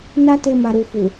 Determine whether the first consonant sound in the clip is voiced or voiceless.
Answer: voiced